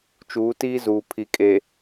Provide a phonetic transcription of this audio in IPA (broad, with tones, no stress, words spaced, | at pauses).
t͡ʃuː˨˦tiː˦zuː˨ pʰi˨kʼe˨